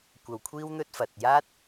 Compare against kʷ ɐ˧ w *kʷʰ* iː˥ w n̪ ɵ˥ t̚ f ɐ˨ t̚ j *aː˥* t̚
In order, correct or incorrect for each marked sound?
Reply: correct, correct

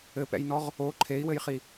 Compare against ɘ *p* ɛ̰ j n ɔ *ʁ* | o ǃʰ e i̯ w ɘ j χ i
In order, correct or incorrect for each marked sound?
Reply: correct, correct

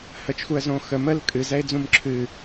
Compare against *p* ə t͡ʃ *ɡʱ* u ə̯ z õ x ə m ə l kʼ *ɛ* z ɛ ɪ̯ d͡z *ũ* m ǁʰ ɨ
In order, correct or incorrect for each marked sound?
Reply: incorrect: h, incorrect: x, incorrect: ɨ, correct

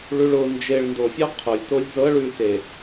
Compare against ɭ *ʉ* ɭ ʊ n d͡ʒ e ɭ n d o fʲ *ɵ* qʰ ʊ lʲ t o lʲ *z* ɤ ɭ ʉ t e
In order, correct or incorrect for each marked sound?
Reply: correct, incorrect: ɔ, correct

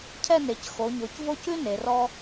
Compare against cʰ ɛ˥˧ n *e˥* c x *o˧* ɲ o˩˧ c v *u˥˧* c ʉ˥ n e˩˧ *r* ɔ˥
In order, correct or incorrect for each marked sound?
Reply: incorrect: e˩˧, incorrect: o˩˧, incorrect: o˥˧, correct

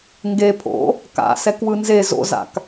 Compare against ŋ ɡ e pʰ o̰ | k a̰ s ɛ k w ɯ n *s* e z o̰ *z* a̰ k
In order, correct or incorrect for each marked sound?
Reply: incorrect: z, correct

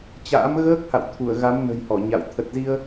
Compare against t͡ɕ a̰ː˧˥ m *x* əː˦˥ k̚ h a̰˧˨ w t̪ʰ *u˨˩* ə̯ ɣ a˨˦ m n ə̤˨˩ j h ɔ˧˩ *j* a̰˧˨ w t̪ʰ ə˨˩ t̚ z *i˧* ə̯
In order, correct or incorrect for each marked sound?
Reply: incorrect: ɣ, incorrect: u˧˩, incorrect: ɲ, correct

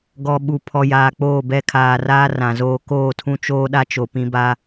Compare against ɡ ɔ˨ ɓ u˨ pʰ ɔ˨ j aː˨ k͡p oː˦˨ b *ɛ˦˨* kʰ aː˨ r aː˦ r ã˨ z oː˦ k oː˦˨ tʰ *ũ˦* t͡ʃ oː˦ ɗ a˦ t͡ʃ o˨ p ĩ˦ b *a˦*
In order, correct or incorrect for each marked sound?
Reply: correct, correct, correct

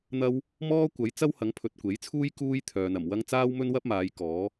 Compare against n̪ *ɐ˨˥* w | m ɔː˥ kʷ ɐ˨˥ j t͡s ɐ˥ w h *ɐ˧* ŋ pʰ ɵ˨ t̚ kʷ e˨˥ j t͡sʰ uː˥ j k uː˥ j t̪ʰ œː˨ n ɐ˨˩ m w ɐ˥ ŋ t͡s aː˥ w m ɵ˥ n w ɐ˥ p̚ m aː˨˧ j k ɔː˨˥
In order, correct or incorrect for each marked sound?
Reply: incorrect: ɐ˧, incorrect: ɐ˨˥

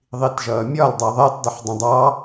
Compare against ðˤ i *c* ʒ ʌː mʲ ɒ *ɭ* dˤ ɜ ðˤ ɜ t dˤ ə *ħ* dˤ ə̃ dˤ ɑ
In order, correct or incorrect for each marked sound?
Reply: incorrect: t, incorrect: l, correct

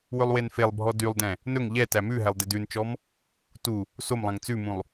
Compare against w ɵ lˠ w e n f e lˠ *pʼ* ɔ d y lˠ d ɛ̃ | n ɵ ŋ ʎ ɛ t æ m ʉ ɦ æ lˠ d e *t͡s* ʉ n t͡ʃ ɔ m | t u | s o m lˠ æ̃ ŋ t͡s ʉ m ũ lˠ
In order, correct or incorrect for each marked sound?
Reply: incorrect: bʱ, incorrect: d

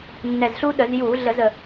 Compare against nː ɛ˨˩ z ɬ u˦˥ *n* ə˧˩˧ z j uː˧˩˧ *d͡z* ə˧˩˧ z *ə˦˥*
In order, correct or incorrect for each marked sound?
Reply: incorrect: ɗ, incorrect: ɮ, incorrect: ə˨˩

